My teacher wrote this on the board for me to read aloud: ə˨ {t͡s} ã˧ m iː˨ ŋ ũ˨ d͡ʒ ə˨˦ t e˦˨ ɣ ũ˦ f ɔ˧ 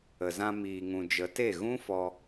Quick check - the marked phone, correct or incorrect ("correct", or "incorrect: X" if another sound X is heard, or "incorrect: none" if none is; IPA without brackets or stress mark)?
incorrect: z